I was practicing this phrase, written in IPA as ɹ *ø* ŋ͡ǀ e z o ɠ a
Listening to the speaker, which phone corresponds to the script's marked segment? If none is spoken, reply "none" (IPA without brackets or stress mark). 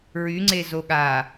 y